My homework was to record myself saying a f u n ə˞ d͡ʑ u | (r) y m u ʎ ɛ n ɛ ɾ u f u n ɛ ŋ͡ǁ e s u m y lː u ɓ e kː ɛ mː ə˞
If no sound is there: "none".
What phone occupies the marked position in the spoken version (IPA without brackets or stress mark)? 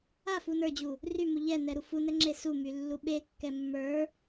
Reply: r